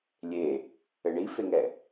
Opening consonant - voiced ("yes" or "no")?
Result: yes